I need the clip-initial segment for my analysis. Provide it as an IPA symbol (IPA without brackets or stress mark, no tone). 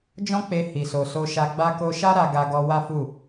d͡ʒ